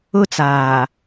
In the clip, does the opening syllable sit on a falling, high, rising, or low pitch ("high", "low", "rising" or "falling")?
high